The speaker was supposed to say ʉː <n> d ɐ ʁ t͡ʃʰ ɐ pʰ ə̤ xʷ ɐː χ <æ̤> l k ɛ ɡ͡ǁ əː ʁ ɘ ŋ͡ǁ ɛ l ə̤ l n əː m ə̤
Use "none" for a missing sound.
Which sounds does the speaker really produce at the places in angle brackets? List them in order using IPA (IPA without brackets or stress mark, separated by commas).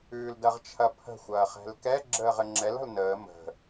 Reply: l, ɛ̤